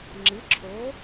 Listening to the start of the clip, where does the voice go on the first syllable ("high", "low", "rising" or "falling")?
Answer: rising